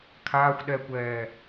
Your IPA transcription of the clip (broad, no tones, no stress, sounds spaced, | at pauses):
kʰ aː xʷ ɗ ɛ kʷ ɛː